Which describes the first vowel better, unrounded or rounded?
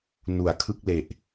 rounded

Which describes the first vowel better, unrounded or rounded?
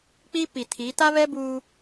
unrounded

